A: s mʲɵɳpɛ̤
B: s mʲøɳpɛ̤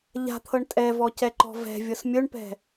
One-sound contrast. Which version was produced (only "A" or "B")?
A